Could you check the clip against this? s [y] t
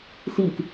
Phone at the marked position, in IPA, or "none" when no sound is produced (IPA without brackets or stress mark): i